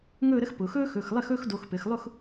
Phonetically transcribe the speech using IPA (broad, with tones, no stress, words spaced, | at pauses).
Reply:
ŋɵː˥˧ɾə˥x pʊ˩˧xɵː˥ xɵ˩˧˩xlˠɘ˥˧xɵː˥˧xdo˩˧˩x pɘ˩˧x lˠʊ˥˧x